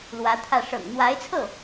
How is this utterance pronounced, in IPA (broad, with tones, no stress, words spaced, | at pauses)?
lwä˧˥t̪ʰä˥˩ ʂɤ̰˨˩ŋn̪wa˧˥ɪ̯t͡sʰɤ˥˩